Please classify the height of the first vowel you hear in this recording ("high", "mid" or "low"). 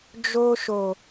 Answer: mid